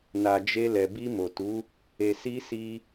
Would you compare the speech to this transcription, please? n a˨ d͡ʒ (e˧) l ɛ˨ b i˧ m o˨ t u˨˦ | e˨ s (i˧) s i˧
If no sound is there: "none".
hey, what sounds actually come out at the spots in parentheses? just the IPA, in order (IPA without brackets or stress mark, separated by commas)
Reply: e˧, i˧